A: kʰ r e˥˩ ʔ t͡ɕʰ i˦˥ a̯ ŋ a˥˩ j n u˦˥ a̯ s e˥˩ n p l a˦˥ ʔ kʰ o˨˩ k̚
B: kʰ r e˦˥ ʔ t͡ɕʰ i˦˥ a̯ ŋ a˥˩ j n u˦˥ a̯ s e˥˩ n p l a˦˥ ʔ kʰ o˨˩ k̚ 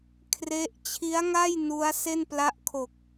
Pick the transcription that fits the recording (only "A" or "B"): B